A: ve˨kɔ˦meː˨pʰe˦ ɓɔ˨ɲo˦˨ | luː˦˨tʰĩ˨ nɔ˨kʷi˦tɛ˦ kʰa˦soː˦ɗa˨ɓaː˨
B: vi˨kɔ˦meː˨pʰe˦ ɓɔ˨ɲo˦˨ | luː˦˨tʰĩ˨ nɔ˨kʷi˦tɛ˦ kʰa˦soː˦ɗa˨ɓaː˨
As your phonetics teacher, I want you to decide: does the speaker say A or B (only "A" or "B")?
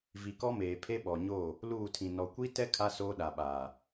B